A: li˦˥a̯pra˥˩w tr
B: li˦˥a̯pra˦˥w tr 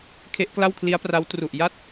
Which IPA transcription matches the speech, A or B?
B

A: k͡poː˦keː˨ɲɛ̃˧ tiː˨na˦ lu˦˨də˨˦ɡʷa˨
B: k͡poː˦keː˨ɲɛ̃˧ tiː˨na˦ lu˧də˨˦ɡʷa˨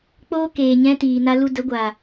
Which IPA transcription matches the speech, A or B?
B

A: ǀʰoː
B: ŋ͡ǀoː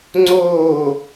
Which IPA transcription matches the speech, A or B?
B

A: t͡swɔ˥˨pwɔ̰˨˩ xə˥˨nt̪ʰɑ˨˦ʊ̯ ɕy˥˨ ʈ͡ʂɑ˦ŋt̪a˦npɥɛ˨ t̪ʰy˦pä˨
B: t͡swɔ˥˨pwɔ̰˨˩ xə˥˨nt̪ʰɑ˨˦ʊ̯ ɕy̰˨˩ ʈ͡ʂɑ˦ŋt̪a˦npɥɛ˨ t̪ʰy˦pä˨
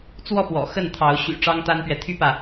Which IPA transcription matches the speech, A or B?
B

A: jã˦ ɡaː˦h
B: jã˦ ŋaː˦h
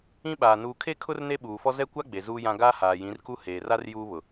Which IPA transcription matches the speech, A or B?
A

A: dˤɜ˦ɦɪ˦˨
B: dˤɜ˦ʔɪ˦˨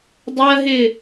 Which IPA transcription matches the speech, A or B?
A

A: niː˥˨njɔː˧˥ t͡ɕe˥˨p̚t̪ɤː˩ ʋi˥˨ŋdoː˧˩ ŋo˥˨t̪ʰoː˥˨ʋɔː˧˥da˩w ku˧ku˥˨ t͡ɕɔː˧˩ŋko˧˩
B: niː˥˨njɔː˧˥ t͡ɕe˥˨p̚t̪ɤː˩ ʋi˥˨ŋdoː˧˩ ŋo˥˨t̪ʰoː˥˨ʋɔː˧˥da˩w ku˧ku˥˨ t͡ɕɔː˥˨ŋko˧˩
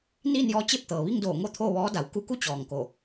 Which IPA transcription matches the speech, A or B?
A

